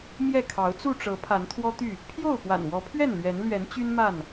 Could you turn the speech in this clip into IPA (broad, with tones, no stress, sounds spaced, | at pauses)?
m j ɛ˥˨ kʰ ɑ˨˦ ʊ̯ t͡s u˥˨ ʈ͡ʂ ɤ˨˦ pʰ a˨˦ n t̪ʰ w ɔ˦ t̪ y˥˨ | pʰ j o˥˨ ʊ̯ p w a̰˨˩ n w ɔ˨˦ pʰ ɥ ɛ˥˨ n l ɥ ɛ˨˦ n l ɥ ɛ˨˦ n t͡ɕ y˦ n m a˥˨ n